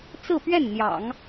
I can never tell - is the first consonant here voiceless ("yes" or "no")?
yes